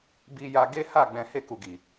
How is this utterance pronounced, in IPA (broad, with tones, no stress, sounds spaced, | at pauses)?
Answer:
b i˧ j a˧ ɡ e˦ h a˦˨ ɡ͡b ɛ̃˨ h e˧ k u˨ ɡ i˨